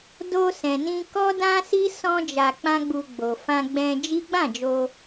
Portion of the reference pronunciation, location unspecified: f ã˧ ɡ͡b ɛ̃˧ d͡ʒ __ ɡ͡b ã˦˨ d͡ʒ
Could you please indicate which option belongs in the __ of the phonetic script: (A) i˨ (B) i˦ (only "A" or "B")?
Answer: B